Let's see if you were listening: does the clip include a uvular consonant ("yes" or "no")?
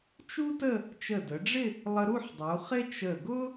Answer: yes